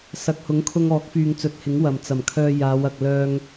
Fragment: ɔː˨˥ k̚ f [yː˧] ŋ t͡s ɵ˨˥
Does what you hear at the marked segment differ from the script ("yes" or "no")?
yes